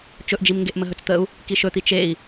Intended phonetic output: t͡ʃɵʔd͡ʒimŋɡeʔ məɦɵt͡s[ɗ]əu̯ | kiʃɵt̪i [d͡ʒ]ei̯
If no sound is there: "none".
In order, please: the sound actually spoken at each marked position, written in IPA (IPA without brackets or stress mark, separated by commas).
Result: t̪, t͡ʃ